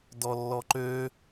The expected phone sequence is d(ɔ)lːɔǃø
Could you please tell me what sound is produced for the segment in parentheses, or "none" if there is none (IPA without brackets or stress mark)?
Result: ɔ